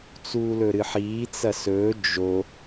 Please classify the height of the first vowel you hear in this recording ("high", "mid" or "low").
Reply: high